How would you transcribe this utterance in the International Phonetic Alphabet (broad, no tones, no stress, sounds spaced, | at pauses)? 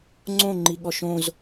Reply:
ŋ͡ǀ õ ŋ͡ǃ i ɠ ɔ ʃ õ z